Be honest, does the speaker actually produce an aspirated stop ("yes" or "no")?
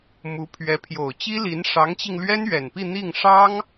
yes